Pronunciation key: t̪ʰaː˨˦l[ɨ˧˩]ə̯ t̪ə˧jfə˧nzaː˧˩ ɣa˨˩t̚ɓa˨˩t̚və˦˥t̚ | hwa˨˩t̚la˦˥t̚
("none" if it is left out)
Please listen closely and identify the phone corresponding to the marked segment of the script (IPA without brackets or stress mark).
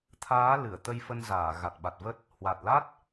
ɨ˧˩